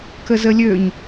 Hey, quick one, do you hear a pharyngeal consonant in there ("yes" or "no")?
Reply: no